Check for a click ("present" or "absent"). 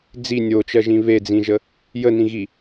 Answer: absent